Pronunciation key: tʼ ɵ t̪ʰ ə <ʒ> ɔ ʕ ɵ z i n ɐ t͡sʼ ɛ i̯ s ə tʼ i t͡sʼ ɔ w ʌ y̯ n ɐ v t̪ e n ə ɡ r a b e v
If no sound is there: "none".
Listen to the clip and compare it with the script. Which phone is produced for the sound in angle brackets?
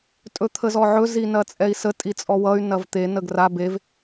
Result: z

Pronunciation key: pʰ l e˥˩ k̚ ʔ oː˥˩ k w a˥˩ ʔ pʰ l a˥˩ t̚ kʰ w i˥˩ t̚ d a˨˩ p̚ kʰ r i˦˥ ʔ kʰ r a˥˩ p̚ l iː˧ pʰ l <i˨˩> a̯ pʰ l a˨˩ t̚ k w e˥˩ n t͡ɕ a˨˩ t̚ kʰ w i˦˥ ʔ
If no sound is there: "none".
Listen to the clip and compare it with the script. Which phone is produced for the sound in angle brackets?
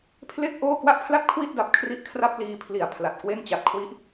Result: i˨˩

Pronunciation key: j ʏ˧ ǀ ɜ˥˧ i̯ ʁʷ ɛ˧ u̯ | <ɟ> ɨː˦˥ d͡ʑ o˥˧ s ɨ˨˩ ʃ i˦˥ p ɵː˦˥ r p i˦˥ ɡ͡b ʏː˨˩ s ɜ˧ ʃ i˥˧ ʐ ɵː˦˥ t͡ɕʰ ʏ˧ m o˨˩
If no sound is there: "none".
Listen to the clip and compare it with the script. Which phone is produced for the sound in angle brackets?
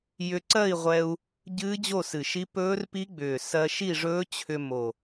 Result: ɟ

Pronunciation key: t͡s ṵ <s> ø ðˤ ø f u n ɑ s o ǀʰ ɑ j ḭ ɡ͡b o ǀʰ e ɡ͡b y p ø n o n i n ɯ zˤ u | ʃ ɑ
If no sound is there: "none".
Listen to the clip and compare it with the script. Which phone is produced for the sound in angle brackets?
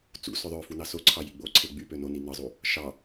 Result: s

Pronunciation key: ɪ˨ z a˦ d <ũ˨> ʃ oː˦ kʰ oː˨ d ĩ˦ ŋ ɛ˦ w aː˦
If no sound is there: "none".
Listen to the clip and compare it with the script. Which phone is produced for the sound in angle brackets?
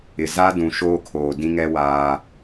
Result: ũ˨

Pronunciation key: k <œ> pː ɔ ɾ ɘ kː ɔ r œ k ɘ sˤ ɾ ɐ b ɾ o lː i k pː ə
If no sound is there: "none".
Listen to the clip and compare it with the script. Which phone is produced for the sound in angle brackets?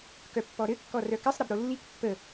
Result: œ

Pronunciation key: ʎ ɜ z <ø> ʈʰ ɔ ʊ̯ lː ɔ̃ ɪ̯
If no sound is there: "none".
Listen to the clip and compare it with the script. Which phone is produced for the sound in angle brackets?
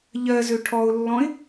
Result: ø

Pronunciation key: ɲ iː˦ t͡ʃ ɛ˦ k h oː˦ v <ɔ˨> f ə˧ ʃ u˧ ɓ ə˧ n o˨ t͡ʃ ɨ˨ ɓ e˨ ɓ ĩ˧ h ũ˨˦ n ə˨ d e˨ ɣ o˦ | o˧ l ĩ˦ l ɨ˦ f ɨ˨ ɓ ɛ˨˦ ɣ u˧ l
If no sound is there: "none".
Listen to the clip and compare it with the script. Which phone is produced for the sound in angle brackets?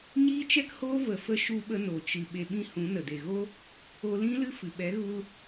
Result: ə˨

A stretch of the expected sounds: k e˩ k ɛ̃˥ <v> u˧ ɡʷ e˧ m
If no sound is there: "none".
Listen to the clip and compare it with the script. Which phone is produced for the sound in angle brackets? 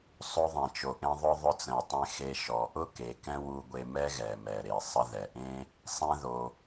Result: w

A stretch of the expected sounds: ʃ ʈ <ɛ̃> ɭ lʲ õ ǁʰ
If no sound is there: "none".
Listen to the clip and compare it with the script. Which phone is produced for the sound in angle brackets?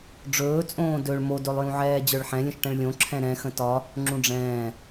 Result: ɛ̃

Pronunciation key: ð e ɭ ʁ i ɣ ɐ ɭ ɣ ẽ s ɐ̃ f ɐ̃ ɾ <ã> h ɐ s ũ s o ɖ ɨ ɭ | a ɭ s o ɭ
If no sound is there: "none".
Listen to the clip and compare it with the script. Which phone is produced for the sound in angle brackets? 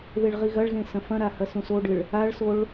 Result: a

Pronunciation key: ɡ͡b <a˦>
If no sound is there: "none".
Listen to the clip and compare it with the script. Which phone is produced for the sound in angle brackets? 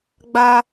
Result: a˦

